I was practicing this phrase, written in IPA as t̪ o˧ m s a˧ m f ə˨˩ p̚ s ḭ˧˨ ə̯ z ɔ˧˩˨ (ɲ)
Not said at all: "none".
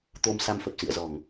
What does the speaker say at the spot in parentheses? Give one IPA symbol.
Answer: ŋ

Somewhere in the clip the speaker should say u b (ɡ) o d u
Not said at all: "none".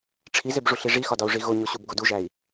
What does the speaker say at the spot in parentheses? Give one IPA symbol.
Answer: ɡ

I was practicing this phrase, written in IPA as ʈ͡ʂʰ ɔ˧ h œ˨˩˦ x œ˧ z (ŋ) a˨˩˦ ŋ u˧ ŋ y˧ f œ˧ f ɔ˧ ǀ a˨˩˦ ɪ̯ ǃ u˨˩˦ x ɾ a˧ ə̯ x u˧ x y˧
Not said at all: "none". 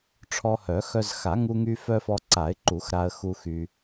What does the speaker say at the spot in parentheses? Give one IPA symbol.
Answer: x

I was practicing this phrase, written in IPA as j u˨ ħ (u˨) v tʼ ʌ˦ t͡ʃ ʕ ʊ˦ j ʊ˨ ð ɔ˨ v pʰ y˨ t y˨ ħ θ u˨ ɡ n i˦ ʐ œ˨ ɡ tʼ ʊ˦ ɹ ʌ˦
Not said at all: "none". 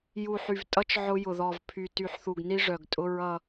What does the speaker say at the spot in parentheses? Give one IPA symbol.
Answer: y˨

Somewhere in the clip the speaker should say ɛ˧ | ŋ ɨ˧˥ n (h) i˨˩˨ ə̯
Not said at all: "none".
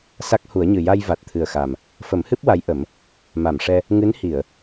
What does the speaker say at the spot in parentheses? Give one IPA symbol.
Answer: h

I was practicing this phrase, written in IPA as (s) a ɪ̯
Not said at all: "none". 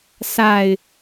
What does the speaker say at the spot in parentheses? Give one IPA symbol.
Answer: s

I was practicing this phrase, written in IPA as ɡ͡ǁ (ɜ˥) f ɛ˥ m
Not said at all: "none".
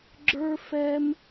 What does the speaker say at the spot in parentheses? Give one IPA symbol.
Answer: ə˞˥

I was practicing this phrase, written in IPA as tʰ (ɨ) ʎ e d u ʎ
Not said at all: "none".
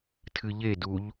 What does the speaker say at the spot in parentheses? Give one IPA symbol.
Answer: ɨ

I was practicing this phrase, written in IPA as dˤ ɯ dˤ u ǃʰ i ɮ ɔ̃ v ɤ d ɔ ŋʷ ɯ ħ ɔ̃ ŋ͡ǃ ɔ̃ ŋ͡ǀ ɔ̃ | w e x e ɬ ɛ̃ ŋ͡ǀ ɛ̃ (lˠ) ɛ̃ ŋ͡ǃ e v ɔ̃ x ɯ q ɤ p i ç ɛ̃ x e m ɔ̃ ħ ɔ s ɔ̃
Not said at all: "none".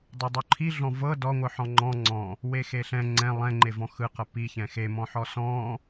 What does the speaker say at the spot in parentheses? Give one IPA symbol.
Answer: lˠ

